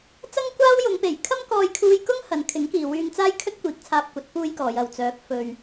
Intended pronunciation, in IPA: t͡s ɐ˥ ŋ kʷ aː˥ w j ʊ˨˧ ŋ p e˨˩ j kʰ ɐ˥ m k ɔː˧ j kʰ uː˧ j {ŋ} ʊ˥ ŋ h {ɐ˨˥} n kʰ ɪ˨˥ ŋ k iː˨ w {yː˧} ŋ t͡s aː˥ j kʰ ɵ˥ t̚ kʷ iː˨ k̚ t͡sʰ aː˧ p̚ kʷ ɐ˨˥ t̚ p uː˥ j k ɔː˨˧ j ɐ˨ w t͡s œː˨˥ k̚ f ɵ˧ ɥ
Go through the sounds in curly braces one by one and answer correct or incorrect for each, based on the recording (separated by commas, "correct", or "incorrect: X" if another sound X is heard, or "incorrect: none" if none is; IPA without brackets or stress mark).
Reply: incorrect: k, incorrect: ɐ˨˧, correct